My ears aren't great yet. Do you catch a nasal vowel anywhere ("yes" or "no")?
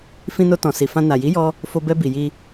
yes